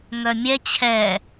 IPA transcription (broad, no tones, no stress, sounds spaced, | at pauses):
ŋ œ mʲ ɛ t͡ɕʰ ɛ